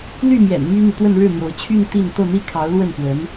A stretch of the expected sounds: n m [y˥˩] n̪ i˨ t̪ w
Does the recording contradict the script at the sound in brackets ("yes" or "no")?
yes